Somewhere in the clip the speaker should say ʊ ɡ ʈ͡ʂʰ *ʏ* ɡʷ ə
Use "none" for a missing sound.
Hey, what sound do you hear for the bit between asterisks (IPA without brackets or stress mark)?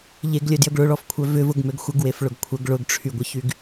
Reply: y